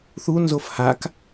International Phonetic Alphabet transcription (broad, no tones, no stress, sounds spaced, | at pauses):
θ u n z o f h a k